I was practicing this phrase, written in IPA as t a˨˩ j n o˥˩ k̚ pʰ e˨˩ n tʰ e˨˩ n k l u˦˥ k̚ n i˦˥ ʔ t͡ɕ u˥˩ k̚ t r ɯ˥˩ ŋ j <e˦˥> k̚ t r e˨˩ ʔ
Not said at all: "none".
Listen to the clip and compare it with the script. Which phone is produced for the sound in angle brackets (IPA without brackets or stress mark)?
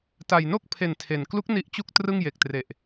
e˨˩